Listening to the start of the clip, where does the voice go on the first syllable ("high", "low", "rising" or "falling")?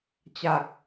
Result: low